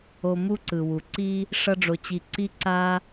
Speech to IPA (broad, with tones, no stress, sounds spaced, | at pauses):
o˧ m u˦ ǀ ɯ˨ w u˨ ǀ i˦ | ʂ ʌ˧ ɖ͡ʐ o˨ t͡ɕ i˨ ǀ i˦ ǀ a˦